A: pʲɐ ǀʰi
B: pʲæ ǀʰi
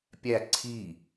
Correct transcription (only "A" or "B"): B